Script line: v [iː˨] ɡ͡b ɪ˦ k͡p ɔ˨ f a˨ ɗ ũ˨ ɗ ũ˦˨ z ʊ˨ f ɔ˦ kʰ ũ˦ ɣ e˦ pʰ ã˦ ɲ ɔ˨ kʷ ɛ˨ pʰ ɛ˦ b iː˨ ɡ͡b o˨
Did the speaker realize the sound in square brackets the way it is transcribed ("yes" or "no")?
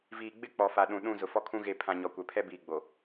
yes